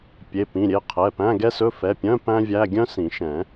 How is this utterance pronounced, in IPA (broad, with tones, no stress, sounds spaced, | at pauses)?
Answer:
pʲ e˩˧˩ p ĩ˩˧˩ ɾʲ e˩˧˩ qʰ ɛ˩˧˩ p æ̃˧˥˧ ɡ ɛ˥ s ɵ˧˥˧ f ɛ˩˧˩ pʲ œ̃˧˥˧ p æ̃˥ vʲ æ˧˥˧ ɡʲ œ̃˥ s ĩ˨˩˦ ʃ ɛ̃˨˩˦